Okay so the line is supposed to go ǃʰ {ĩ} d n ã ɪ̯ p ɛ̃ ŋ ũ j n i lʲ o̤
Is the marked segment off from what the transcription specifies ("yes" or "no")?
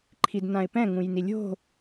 yes